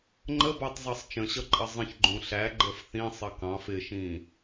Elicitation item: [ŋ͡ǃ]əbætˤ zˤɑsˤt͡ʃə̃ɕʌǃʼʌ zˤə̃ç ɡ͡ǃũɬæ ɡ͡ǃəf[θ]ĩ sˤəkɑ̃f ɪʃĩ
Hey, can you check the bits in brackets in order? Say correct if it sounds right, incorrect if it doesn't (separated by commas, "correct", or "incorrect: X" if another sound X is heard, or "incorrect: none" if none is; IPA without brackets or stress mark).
correct, correct